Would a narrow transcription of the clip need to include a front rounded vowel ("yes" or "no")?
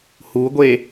no